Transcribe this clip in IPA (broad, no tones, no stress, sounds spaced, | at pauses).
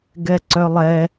ɡ ɛ ǀ œ lˠ ɛ